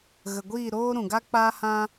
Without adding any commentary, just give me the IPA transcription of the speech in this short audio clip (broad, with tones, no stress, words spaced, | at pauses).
ɣə˨ɡʷiː˦˨ɾoː˦ ɾũ˨ɡa˦k͡paː˦hã˦